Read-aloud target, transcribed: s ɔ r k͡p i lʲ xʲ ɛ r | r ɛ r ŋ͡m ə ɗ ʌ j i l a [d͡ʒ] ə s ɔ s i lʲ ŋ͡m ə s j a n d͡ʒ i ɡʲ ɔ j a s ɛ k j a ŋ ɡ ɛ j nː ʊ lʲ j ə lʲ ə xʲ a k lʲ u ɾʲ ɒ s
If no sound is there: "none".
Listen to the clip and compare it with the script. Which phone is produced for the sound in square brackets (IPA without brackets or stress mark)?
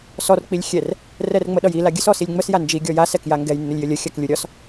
ɡʲ